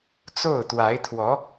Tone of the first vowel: falling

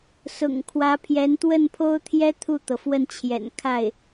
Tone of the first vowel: low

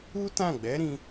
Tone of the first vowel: high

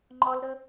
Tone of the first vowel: high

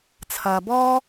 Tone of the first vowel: low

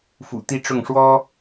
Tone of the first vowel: low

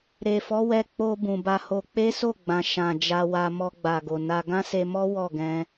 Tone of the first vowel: low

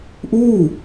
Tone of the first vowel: falling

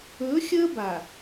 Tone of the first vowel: rising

